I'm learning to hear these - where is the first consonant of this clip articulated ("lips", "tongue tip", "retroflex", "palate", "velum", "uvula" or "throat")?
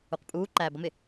uvula